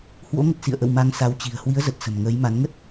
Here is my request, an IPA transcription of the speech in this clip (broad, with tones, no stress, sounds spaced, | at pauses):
h w o̰˧˥ ŋ ə˨˩ t̚ s ḭ˧˨ ə̯ ʔ ə̰˧˨ w m a˧ ŋ s a˨˦ w t͡ɕ i̤˨˩ ə̯ h w i˨˦ ə̯ z ə˨˩ t̚ s ə̤˨˩ m ŋ əː˨˦ j m a˨˦ n ŋ ə˦˥ t̚